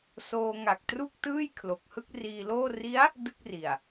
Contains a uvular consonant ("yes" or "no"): no